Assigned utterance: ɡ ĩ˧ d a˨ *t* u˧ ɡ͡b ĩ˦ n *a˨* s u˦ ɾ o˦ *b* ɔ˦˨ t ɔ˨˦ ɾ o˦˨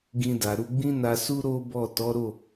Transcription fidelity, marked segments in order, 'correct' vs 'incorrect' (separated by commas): incorrect, incorrect, correct